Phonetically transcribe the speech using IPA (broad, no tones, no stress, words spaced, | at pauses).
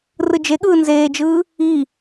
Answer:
rɯd͡ʒeɠɯː nzeːd͡ʒɯː | i